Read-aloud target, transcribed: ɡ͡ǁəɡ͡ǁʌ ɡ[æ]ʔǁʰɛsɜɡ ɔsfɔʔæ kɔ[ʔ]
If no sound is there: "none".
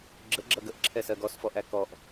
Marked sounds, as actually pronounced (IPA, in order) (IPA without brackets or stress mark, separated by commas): ə, ʔ